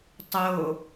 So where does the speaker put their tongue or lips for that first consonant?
tongue tip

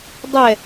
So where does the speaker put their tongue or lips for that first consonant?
tongue tip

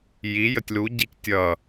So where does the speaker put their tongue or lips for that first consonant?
palate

